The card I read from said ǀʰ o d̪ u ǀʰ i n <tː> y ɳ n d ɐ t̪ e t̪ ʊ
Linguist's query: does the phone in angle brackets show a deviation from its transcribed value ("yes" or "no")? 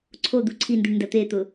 yes